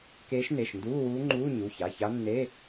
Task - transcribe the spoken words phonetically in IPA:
keː˧˥ʃne˩˧˩ʃnduː˧˥˧ wuː˧˥ŋ͡ǃuː˧˥˧ ɲu˩˧˩ça˩˧˩ça˧˥nːe˧˥˧

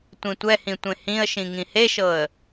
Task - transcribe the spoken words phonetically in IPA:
tʷĩtʷɛhĩ tʷẽhĩə̯ʃĩ ŋĩheʃɤə̯

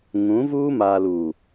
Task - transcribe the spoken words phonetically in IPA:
ŋũ˨˦vuː˦ maː˨luː˨

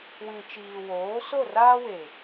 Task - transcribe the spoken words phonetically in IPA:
wĩ˨t͡ʃiː˨woː˨˦ so˦˨raː˦we˨

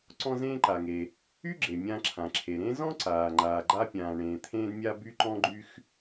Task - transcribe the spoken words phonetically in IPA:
ǀɔ̃˥zẽː˥ǃa˩ŋe˩ | y˥ɡ͡ǁe˩ mʲã˥ǁʰã˩ǁʰe˩ ɾẽ˥ zɔ̃˥ǀaː˩ ŋ͡ǃaː˩ɡ͡ǃa˥pʲãː˩ ɳẽː˩t̪ʰẽː˥dmʲa˥ by˥ǃɔ̃˥ɡ͡ǃy˥x

